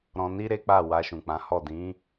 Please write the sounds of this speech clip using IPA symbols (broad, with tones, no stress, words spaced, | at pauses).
ɾɔ̃˧ni˦ ɾe˦k͡pa˦˨ wa˧ʃũ˨k͡pã˨˦hɔ˦˨ dĩ˨˦